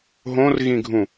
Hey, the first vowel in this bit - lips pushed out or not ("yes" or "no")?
yes